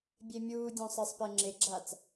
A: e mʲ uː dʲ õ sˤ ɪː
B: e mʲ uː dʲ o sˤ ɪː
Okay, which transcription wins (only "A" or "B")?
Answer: A